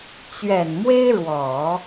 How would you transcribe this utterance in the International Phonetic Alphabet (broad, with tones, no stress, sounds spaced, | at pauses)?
t͡ɕ ɥ ɛ˨˩ n m w e˥ ɪ̯ ɻ w ɔ˨˩˦